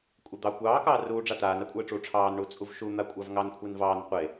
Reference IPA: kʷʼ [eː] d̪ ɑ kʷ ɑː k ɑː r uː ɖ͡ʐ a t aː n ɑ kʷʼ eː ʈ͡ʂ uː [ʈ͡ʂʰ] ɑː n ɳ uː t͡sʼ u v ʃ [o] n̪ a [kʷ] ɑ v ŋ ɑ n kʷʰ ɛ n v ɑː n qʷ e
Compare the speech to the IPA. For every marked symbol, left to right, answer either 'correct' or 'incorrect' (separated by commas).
incorrect, correct, incorrect, incorrect